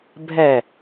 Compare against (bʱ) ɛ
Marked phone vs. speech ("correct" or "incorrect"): correct